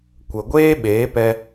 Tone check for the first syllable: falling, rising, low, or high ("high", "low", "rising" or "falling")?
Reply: low